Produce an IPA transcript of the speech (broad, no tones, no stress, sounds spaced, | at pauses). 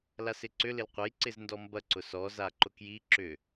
l a s ɪ ǀ ʏ l ɪ l qʷ ɐ j ǀ ɪ z n d ɔ m b ɐ ǀ ʊ s ɔ z a ǃ ʊ k j i ǁ ʏ